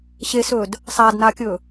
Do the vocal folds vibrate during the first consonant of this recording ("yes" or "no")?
no